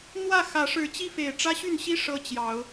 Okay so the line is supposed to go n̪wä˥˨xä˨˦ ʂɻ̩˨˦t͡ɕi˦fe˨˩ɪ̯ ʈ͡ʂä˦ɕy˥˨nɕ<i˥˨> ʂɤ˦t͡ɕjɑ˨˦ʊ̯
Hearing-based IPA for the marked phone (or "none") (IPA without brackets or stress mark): i˦